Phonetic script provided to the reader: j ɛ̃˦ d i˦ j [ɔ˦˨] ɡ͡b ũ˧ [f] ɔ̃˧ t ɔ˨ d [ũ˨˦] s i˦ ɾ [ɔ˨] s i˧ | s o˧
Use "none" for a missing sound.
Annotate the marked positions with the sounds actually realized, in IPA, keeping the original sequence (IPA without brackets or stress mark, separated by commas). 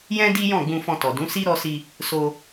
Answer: ɔ̃˦˨, f, ũ˨˦, ɔ˧